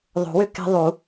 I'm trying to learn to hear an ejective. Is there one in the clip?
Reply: no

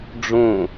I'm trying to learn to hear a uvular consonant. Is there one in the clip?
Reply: no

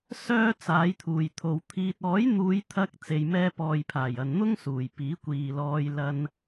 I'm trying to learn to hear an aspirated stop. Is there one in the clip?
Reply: yes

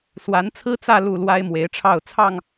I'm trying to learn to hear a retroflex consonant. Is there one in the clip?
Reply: yes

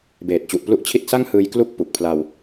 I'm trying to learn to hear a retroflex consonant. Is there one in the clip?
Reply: no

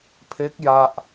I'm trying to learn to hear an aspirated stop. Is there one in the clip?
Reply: yes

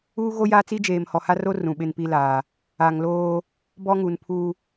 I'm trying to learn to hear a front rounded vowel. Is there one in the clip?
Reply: no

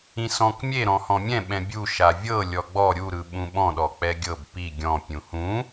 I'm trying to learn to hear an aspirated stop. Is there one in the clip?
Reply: no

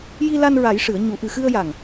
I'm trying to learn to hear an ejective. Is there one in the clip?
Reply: no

